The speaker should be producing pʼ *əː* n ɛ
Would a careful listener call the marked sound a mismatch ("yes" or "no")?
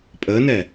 no